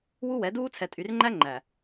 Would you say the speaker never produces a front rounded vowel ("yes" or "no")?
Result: no